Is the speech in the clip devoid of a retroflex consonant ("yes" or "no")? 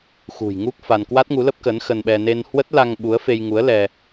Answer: yes